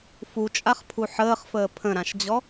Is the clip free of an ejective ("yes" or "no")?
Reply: no